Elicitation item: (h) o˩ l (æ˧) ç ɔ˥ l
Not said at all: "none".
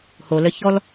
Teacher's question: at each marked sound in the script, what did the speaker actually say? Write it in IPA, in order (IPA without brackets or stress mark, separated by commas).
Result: h, ə˧